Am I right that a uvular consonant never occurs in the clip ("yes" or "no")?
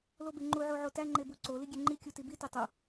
yes